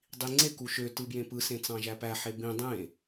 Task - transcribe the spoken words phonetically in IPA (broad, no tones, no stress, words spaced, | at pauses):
dˤiŋ͡ǀe kuʃø tɯbjẽpɯ sẽt͡sɑ̃ʒæpæ ħebĩ dˤẽ